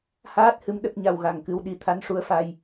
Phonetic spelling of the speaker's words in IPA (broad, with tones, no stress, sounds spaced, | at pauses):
h aː˦˥ t̚ h ɨ˧˥ m ɗ ə˦˥ k̚ ɲ a˧ w ɣ a˨˩ ŋ k ɨ˧˥ w ɗ i˨˩ t̪ʰ a˧˥ n ʂ u˧˥ ə̯ f a˧ j